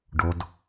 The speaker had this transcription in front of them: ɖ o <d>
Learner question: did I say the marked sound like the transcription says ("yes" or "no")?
yes